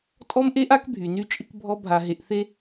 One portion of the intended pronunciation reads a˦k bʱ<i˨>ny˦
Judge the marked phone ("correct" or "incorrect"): incorrect